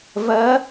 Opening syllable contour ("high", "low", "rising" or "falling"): rising